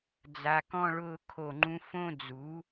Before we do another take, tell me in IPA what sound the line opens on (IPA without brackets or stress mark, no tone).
d͡z